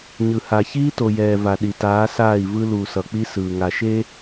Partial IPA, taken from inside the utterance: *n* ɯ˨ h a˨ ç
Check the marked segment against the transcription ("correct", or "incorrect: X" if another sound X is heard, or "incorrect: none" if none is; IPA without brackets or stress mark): incorrect: ɲ